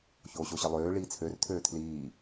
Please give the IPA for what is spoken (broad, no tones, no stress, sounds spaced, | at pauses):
ç oː ɕ o ɕ ə lˠ øː ɭ iː t͡sʰ ø r tʰ øː tʰ l iː